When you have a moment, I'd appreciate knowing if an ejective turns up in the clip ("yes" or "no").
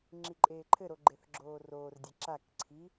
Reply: yes